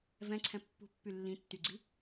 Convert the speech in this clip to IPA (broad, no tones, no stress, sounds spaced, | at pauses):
v ɛ̃ ǀʰ ɛ̃ pː ṳ pː y lː ĩ tː y ɡ͡ǀ i